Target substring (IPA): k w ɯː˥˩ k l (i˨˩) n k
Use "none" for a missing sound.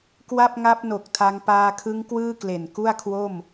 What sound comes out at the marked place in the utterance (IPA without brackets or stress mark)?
e˨˩